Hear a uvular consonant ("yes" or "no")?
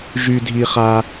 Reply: yes